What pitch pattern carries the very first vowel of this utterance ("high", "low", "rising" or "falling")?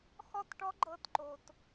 falling